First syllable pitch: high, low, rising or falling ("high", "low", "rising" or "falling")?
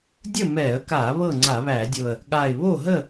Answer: falling